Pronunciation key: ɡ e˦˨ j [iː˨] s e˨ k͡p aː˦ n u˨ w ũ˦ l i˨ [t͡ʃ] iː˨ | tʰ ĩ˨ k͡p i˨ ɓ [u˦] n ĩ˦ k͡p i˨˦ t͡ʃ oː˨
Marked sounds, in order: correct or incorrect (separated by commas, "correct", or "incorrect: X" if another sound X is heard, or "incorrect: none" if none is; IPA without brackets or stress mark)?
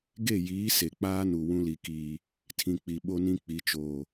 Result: incorrect: iː˨˦, incorrect: k, incorrect: o˦